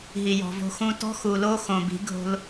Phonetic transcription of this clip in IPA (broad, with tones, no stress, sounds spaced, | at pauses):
ɦ i˨ j ɔ̤˨ v o̤˧ x ũ˧ t ɔ̤˦ x u˨ l o˦ x õ˨ b i̤˨˦ ɡʱ o̤˧ l